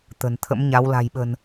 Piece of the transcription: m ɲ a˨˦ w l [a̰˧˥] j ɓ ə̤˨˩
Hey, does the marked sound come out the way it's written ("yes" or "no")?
no